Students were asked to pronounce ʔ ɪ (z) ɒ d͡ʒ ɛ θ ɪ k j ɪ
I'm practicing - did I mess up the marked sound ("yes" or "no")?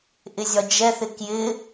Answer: yes